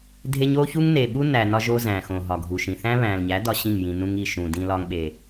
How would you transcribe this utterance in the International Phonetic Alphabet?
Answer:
dʱe˦ɲ o˦ çu˦ŋne˨ɓu˦ næ˨ nɒ˦ʒo˦zæ̃˨xõ˨ ɦɒ˨ɡʱu˨ʃĩ˨ θæ̃˦βæ̃˨lɲæ˨˦ dɒ˦ɕĩ˦˨ŋjĩ˨ nũ˦ŋi˦˨ ʃũ˨ dĩ˦lɒ˦ŋɓe˨

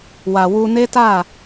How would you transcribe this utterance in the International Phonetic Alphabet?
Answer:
wa˨ wu˧ne˦ta˦˨

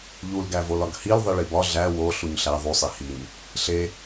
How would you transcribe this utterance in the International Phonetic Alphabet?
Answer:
ʎulɡævo lɒɡhil ðˤiɭibɒ ɮæ wo ɬuɲɬæ ðˤusˤe hiɲ | ɬe

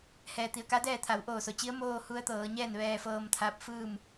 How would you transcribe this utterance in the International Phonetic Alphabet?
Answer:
hɛː˩t̪i˩ə̯ka˧˥dɛː˥˨ t̪ʰa˩˧wʔoː˧˩so˩t͡ɕi˧˥ə̯ moː˥˨hu˧˥ə̯t̪ɤː˩˧ɲɛː˥˨n ʋɛː˧fɤː˧mt̪ʰa˧˥p̚ fɯː˥˨m

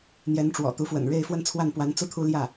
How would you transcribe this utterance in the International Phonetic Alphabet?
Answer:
n̪jɛ˧˥nʈ͡ʂwɔ̰˨˩t̪u˧˥fwə̰˨˩n ɻe˥˩ɪ̯fwə˥nt͡sʰwa˥˩npwa˧˥n t͡su˥˩t̪ʰu˥ljä˥˩

